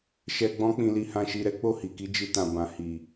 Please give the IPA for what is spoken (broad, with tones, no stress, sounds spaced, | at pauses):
ʃ ɛ˧ ɡ͡b ɔ̃˦ k͡p ĩ˧ l i˧ h ã˧ ʃ i˧ ɾ ɛ˦ k͡p o˦˨ h i˨ k i˨˦ d͡ʒ i˧ t ã˨ b ã˨ h i˨